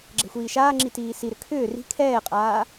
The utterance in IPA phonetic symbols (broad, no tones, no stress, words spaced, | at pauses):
ɡ͡ǁɛ̤xʷiːʃaːŋ͡ǁi tiːsiɾʏ kʰʏː ri̤ kʰɛːqʼaː